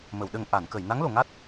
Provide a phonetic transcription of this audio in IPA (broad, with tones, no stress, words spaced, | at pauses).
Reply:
mə˨˩˨wɗə˨˩ŋ ʔa˨˩˨nkə˨˩˨j na˧˥ŋlo˨˩˨ŋa˦˥t̚